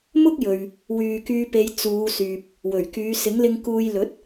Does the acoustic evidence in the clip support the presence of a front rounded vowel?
yes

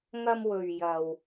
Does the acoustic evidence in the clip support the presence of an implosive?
no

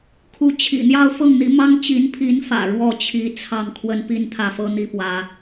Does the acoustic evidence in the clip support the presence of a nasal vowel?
no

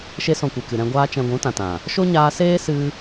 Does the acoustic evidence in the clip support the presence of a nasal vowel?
yes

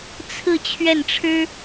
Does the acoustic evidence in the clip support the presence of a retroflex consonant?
yes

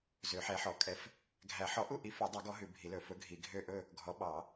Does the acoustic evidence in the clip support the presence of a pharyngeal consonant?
yes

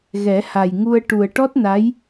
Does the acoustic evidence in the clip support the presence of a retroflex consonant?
yes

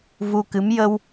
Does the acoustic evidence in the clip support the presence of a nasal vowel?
no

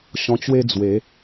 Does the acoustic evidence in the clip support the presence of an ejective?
no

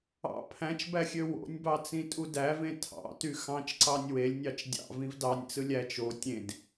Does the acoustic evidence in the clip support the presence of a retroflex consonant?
no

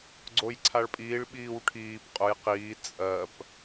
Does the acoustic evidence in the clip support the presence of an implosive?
yes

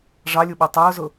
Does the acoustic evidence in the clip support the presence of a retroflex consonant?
yes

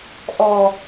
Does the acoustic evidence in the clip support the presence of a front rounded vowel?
no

